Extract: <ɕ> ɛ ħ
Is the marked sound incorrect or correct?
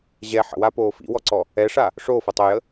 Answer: incorrect